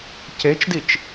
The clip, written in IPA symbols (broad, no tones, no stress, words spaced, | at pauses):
cet͡ʃdit͡ʃ